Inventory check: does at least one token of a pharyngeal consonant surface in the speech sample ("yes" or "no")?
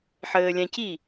yes